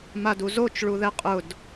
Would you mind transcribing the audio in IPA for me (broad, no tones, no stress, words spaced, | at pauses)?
maduzot͡ʃ ɭuðɛqʼʊd